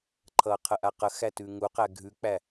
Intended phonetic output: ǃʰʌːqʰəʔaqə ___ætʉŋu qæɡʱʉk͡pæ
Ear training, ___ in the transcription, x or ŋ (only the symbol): x